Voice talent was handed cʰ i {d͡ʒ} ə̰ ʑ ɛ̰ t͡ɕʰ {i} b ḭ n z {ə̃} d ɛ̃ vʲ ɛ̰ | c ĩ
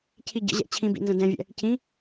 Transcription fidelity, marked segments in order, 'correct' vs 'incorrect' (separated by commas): incorrect, incorrect, correct